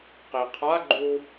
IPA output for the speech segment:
q i qʰ a ɡ͡ǃ u

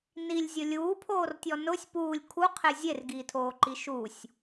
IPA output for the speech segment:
n i lʲ zʲ ʊ lʲ uː pʰ oː r tʲ ɔ n ʊ sʲ p uː lʲ kʰ u qʰ e zʲ e r ɡ iː tʰ oː ǃ i ʃ u sʲ

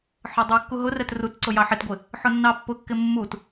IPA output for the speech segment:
ħ ɒ dˤ u kː u ɦ ʊ r ɛ t r u t ǀ ʊ j ɑ ħ ɪ t ɡʷ ɪ | ħ ʊ nː ɑ pː ʊ kː ɪ mː u t

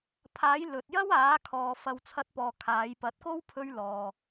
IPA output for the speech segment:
pʰ aː˨˥ j l ɵ˨ t̚ j ɐ˥ w aː˨˥ kʰ ɔː˨ f ɐ˨ w t͡sʰ ɐ˨˥ t̚ p ɔː˨ kʰ aː˨˧ j p ɐ˨˥ t̚ k o˥ w pʰ ɵ˧ ɥ l ɔː˨

